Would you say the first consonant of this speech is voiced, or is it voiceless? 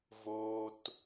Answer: voiced